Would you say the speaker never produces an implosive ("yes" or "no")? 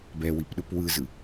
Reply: no